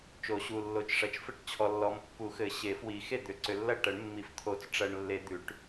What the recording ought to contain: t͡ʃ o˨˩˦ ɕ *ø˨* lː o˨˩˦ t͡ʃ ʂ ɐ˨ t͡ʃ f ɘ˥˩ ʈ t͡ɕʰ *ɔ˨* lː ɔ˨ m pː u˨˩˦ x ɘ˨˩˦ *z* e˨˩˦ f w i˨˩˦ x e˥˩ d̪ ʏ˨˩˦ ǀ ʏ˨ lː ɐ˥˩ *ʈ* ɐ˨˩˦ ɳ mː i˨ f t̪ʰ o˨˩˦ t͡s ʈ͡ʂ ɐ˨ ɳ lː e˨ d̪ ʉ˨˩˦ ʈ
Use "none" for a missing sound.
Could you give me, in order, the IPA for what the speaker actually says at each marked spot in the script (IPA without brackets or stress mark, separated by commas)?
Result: u˨, ɔ˨, ɕ, ʈ